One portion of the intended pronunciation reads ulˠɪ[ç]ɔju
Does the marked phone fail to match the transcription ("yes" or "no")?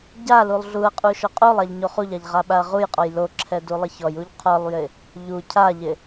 no